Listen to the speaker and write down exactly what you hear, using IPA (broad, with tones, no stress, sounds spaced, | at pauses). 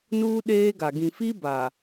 n uː˦ ɗ eː˦ ɡ a˨ ɡ ĩ˨ f i˦ b a˨